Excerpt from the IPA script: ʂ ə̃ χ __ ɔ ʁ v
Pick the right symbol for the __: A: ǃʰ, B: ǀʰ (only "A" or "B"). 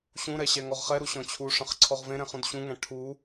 B